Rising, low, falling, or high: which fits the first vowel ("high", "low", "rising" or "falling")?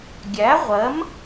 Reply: rising